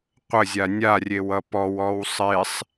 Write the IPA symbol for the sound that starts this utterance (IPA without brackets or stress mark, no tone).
qʷ